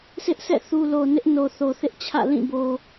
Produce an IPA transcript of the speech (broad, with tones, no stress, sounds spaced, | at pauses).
sʰ ɪ˦ ʔ sʰ ɛ̰˦˨ θ u˨ l o˨ n ɪ˦ ʔ n o˨ θ o˨ θ ɪ˦ ʔ t͡ɕʰ ä̰˦˨ l ĩ˦˨ b o˨